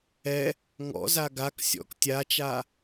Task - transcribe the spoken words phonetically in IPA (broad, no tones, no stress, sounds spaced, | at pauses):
ɛ | ŋ ɔ̰ z a ɡ a k sʲ ɔ̰ k tʲ a t͡ʃ a